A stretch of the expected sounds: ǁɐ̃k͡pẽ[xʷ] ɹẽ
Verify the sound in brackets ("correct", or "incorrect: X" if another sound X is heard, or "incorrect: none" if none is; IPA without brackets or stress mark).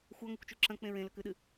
incorrect: none